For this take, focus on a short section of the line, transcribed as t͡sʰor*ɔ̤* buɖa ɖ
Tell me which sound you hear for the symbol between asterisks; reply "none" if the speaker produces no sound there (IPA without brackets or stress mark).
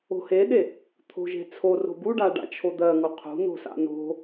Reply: o̤